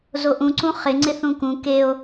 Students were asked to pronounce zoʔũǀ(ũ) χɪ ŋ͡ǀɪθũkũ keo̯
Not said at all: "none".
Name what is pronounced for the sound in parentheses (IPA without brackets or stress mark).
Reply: ũ